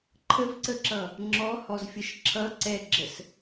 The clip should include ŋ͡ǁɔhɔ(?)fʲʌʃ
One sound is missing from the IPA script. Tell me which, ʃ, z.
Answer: z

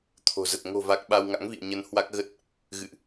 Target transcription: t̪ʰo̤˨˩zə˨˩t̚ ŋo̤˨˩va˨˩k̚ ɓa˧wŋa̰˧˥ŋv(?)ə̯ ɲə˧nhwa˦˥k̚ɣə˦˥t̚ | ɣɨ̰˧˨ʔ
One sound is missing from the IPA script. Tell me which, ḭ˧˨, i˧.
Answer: ḭ˧˨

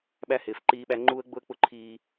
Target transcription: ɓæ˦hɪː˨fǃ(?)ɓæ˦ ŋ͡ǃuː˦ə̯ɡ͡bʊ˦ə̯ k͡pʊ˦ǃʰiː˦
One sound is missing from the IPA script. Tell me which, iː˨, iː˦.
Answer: iː˦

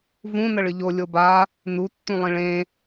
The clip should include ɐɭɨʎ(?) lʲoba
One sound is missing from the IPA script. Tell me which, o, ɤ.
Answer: o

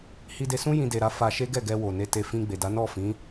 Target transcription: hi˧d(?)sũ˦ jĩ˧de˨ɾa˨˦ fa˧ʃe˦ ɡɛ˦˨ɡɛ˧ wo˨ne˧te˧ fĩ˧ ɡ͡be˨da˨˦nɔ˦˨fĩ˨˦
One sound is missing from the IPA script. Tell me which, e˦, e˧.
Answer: e˧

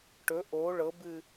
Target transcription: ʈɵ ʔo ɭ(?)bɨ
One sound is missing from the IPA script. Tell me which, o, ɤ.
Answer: ɤ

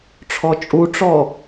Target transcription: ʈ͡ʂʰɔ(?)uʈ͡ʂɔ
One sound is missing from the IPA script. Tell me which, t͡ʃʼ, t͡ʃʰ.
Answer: t͡ʃʼ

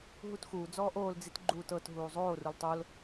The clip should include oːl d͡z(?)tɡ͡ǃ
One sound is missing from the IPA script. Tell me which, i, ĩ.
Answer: i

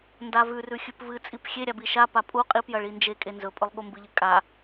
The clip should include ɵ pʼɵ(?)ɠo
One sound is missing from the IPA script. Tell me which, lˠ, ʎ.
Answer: lˠ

